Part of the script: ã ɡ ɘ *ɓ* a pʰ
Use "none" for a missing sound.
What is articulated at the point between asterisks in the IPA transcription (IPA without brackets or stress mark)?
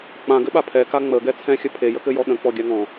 ɓ